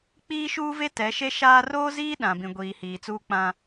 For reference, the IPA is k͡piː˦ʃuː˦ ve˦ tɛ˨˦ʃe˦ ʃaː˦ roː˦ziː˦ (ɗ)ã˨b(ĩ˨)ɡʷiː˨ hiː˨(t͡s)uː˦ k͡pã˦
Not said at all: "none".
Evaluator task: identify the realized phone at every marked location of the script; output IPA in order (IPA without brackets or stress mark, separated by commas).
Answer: ɗ, ĩ˨, t͡s